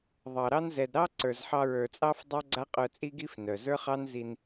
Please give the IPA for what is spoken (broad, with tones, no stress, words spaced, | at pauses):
ðˤɑ˨ɾɑ˦n zɛ˨dɾɑ˦ ǀə˞˨zħɑ˧ɹə˞˨t͡sʼɑ˦f dˤa˦ɡ͡ǀa˦qʼœ˧t͡sʼi˦ ɡi˦f nœ˨ zə˞˦χɑ˦n zi˧n